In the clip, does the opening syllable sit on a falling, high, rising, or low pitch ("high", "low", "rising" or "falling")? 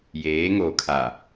rising